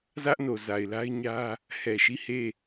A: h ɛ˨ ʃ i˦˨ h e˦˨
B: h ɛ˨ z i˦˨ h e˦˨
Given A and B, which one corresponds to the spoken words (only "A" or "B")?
A